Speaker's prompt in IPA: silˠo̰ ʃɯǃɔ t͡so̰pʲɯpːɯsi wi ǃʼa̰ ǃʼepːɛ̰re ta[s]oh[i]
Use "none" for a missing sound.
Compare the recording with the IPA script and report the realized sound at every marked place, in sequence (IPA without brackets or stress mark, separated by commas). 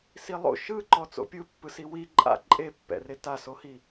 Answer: s, i